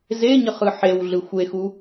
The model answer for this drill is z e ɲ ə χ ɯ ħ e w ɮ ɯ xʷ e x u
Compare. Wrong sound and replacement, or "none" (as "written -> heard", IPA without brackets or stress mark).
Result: none